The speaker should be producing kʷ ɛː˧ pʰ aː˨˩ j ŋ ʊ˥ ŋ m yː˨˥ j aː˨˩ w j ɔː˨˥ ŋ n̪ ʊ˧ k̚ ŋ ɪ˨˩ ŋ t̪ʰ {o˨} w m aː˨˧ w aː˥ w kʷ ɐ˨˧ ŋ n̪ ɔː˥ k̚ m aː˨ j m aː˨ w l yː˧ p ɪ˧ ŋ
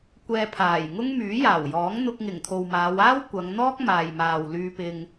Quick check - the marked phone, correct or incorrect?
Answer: correct